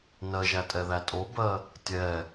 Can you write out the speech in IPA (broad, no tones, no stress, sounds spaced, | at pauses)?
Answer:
n ɜ ʒ æ tʼ ɛ ð æ tʼ o b ɜ | tʲ ɛ